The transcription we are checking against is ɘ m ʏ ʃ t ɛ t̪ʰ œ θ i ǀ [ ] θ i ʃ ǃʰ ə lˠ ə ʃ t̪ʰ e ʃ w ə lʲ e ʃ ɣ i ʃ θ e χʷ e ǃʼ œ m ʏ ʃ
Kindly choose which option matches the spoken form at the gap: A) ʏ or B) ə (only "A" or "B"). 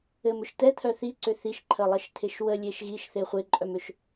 A